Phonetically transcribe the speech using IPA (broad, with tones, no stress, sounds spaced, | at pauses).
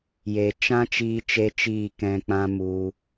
j e˨ t͡ʃ ã˦ t͡ʃ iː˧ t͡ʃ e˧ t͡ʃ iː˦˨ k ɛ̃˧ k͡p ã˦ m u˧